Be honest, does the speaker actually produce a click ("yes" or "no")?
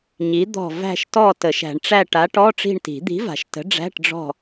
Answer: no